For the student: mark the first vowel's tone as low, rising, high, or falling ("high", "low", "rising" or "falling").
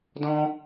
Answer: high